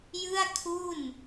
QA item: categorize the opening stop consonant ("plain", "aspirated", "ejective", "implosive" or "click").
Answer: aspirated